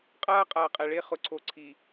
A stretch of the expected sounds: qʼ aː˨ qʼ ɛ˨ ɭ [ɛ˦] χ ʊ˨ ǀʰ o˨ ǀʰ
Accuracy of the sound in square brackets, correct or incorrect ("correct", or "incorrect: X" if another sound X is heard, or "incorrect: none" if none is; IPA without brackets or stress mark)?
incorrect: e˦